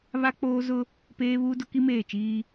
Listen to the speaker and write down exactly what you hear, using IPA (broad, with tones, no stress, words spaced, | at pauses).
βa˦k͡poː˦ zʊ˦ | peː˦βuː˦ dʊ˦ki˦meː˦˨t͡ʃiː˦